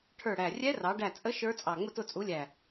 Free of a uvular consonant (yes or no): yes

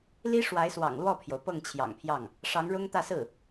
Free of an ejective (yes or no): yes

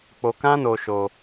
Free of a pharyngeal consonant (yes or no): yes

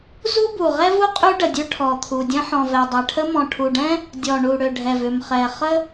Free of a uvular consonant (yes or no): no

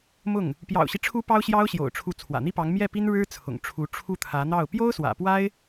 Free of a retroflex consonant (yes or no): no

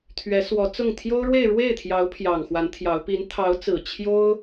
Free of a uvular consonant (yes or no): yes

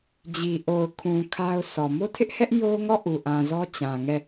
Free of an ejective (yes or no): yes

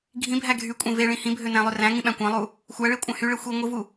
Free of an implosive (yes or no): no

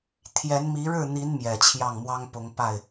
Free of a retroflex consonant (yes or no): no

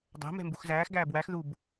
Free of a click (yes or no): yes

